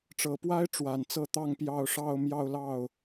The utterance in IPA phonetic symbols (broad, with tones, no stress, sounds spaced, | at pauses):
ʈ͡ʂ ɤ˨˩ p w a˥ ɪ̯ ʈ͡ʂ w a˨˩ n t͡s ɤ˥˧ t̪ ɑ˥˧ ŋ p j ɑ˥˧ ʊ̯ ʂ ɑ˥˧ ʊ̯ m j ɑ˥˧ ʊ̯ l ɑ˥˩ ʊ̯